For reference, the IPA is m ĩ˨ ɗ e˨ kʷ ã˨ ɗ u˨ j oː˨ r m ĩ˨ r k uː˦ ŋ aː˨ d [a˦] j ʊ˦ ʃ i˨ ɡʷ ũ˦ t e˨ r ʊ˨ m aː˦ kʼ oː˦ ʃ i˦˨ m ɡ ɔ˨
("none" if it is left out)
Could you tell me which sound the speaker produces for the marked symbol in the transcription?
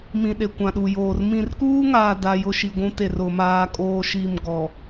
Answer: a˦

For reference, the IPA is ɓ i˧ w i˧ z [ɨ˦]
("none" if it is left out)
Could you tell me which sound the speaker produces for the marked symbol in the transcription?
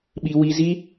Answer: i˦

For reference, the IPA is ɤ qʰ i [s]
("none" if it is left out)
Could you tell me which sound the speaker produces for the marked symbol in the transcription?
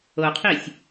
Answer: sʲ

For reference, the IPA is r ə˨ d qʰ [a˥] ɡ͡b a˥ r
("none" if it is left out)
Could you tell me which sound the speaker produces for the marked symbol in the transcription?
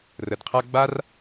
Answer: a˥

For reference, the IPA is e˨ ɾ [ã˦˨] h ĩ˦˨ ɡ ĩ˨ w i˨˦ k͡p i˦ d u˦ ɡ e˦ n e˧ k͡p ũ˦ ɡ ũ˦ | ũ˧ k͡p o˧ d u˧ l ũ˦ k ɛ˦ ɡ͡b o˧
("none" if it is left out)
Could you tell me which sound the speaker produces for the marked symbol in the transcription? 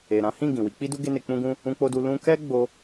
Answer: ã˨˦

